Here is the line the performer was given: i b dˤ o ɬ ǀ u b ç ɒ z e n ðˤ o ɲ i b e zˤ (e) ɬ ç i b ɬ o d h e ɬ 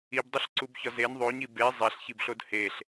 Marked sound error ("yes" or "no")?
no